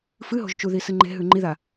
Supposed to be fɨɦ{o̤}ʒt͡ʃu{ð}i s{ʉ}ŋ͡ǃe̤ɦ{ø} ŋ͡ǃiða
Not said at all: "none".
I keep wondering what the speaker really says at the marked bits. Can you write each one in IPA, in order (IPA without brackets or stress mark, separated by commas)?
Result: o̤, ð, ɨ, ʉ